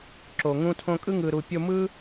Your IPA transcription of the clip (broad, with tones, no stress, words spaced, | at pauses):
ǁo˨ ŋũ˧tʰõ˧kʼɯ˦ ŋɯ˨ɾu˨ pʲo˧mɯ˦